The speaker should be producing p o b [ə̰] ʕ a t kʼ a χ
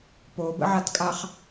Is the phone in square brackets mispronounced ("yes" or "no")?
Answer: no